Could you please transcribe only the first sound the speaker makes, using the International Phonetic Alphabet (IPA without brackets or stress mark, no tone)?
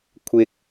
kʷʰ